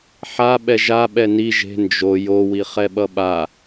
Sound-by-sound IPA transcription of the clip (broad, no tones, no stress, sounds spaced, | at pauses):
ħ a ɓ ɛ ʒ a ɓ ɛ n i ʒ e̤ n d͡ʒ o j o w i χ ɛ ɓ ʌ ɓ a